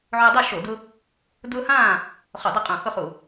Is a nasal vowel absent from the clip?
no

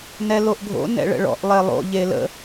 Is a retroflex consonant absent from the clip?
no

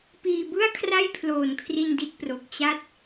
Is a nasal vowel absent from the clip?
yes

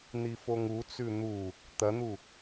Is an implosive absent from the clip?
yes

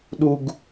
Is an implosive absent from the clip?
no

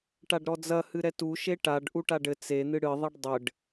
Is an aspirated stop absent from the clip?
yes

